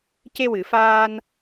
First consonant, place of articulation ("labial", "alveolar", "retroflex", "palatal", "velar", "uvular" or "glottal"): palatal